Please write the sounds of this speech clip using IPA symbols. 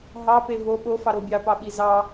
ɦɑpe vo ɓofɑɾo bʲɑpɑɓi zɑ

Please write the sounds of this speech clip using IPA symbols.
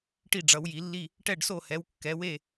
ʈi˦˨ɖ͡ʐʌ˩˧wji˩˧lːi˦˨ | ʈɛ˦˨ɖso˦˨hɛ˩˧w kːɛ˩˧we˦˨

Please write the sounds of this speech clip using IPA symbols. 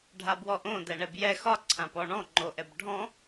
ɖʱabwɔʔõ dɛɳɛbjɛ xɒ ǀʰãpɔɳɔ̃ ŋ͡ǃoʔɛbɖʱɔ̃

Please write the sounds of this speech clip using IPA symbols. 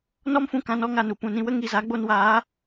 nɔ˦mfũ˧ kã˧nɔ˦ŋa˨nu˨ pũ˨nĩ˧wə˦ ŋi˨za˨˦ɡ͡bo˧nwaː˨˦

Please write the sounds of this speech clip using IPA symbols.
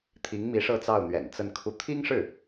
t̪ʰi˧˥ŋmi˧˥ ʂɤ˥˧t͡sɑ˥˩ʊ̯n̪ɥɛ̰˨˩n t͡sə˥˧nkʰu˥˩ t̪ʰi˥ŋʂɻ̩˥˩

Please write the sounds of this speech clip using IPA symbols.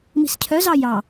mi̤scʰœzɑ jɑ

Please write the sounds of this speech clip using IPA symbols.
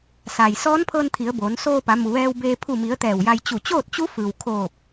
sa˩j sɔː˧˥npʰɤː˧nt̪ʰi˩˧ə̯ boː˩˧n soː˧pa˩˧mu˩ ʋɛː˧wbeː˧ pʰu˧˩mi˩˧ə̯ t̪ɛː˧˩wja˧j t͡ɕu˧˩t͡ɕoː˥˨t̚t͡ɕu˧˥fɯː˩w kʰoː˧˩p̚

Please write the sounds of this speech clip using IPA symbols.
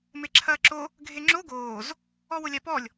meǁʰɐːǁo | ɡʱeŋ͡ǁo ɡoːz | ɔwʊlʲapɔlʲ

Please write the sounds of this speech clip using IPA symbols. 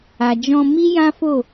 a˨d͡ʒɔ̃˧mi˦ jã˦fo˦˨

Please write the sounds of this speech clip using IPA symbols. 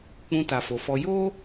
k͡pũ˧ta˨fo˨fɔ˧ jo˦

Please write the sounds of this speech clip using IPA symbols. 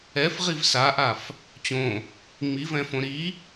ɛfʁiv saʔaf | t͡ɕõ | ŋ͡mivɛ̃fõ ɾi

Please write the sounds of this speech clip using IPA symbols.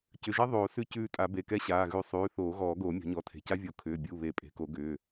cʏ˩˧˩ʒɛ˦˥ ðˤoː˨˩˦ sʉ˦˨cʉː˦˨tʼa˨˩˦ be˩˧˩kɛ˦˥ɕaː˩˧˩ ɣʉ˨˩˦ sˤʉː˩˧˩ θoː˨˩˦ɣɔː˨˩˦ɡoː˨˩˦ mʲɔ̤˨˩˦ɲɔ˩˧˩ tʰe̤˩˧˩ca˦˥vʲo˨˩˦ kʰʏː˩˧˩bʲu˩˧˩ βe˨˩˦pʼe̤˩˧˩ko˨˩˦ ɡʏː˩˧˩

